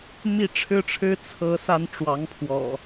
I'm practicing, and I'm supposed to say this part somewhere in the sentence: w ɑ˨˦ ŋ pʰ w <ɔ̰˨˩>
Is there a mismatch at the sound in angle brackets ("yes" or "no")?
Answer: no